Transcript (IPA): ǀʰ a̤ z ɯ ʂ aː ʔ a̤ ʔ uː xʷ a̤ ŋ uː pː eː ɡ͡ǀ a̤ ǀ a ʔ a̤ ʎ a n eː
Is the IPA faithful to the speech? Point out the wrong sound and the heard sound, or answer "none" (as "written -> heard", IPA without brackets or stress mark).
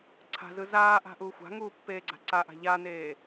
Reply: ʂ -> z